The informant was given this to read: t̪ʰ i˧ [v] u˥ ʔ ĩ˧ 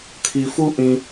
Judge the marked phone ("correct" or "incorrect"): incorrect